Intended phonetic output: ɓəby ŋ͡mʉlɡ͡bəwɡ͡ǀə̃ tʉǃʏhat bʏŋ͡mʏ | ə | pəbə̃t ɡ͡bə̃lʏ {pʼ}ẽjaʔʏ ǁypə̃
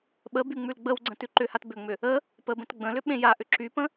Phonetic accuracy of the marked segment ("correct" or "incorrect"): incorrect